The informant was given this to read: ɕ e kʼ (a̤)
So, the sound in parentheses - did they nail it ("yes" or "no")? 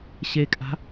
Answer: yes